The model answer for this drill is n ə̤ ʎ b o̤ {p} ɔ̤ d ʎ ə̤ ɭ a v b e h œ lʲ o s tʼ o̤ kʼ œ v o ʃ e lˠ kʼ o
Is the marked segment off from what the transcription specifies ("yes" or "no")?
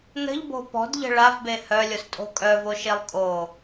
no